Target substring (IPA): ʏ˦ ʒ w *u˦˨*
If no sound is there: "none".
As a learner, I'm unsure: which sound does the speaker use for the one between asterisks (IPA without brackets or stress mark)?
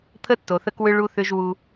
u˦